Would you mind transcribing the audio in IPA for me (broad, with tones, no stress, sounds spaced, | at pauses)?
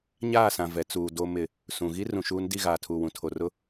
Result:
ɲ aː˦˨ s ã˨ v ɛ˨ t͡s uː˨ d o˨ m ɪ˨ | s ũ˨ ɣ i˦ r ũ˨ ʃ uː˦ n d i˦˨ ɣ aː˨ tʰ uː˨ w ũ˨ tʰ o˨ r ʊ˦